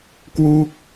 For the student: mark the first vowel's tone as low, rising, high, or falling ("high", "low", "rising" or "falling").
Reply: falling